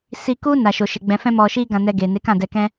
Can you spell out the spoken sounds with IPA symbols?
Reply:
si˧ku˦ na˧ʃo˧ʃe˧ ɡ͡bɛ̃˧fɛ̃˦ mɔ˧ʃi˦ ɡã˧nɛ˧ɡe˨ ne˨˦kã˦˨dɛ˧kɛ̃˦

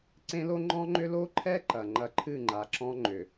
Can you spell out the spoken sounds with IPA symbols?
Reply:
ǀẽ˦lo˦ ŋ͡ǃɔ̃˦ŋ͡ǃʏ˦ lo˦ǃʰɛ˦ ǃɐ˨ŋ͡ǃɐ˦ ǃʰɨ˦˨ŋ͡ǃa˨ǁɔ̃˦ ŋ͡ǃʏ˨

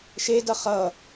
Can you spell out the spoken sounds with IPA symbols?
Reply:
ʃedʌ χʌ

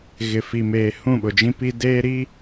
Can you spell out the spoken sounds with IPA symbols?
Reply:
ɣɪ˨fi˨meː˨ hũ˦˨ɓʊ˨d͡ʒĩ˦pi˦ deː˦ ɾi˦

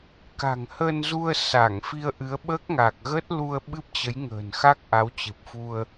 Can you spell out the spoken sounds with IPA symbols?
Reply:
ka̤˨˩ŋhəː˧nzu˧ə̯ sa˧˩ŋfi˧ə̯ʔɨ˨˦ə̯ ɓəː˦˥k̚ŋa˨˩k̚ɣə˦˥t̚ lu˧ə̯ɓɨ˦˥p̚t͡ɕə˨˦j ŋə̤ː˨˩nxa˦˥k̚ ʔa˨˦wt͡ɕɨ˨˩p̚fu˧ə̯

